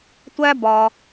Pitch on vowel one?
high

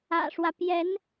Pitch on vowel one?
low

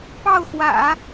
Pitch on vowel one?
falling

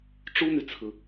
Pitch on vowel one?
high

